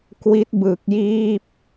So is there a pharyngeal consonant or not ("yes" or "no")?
no